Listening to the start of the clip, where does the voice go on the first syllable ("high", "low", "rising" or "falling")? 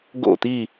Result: falling